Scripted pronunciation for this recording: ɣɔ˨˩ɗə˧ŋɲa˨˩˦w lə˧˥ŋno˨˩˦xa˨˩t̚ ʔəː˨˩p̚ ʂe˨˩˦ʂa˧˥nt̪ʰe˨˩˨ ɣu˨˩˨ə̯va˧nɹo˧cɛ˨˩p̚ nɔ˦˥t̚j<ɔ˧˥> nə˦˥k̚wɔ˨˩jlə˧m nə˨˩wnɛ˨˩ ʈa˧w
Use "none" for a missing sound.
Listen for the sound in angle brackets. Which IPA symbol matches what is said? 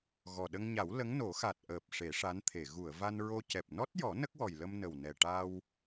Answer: ɔ˨˩˦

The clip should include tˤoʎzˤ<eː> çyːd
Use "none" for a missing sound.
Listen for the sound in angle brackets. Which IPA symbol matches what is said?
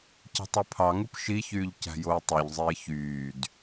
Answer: eː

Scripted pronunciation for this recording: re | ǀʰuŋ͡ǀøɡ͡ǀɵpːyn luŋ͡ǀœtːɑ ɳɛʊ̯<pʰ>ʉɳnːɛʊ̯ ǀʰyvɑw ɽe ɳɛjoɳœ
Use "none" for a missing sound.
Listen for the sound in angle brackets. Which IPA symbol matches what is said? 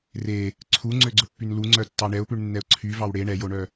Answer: p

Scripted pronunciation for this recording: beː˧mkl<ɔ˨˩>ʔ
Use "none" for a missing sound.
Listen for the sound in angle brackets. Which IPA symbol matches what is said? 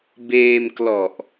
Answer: ɔ˨˩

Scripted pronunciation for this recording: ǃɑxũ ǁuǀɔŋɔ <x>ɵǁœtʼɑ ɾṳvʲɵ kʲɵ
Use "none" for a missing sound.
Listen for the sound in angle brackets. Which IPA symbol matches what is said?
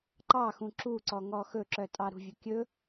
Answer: x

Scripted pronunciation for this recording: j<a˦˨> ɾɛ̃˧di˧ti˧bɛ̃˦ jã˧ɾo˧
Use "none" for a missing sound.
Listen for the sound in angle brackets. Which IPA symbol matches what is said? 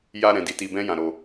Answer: a˧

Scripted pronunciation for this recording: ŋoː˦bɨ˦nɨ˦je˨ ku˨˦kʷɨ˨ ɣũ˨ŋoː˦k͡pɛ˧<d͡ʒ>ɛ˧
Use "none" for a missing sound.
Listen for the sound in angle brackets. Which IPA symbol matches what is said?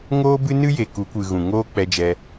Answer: d͡ʒ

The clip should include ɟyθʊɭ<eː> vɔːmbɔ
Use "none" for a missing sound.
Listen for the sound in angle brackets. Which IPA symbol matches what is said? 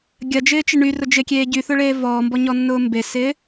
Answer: eː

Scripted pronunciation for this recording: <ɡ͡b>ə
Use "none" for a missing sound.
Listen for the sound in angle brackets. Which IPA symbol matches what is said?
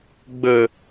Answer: ɡ͡b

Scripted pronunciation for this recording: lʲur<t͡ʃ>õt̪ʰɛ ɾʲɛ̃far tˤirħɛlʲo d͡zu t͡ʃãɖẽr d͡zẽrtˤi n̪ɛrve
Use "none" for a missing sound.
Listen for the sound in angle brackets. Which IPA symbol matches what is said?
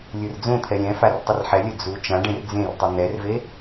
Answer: d͡z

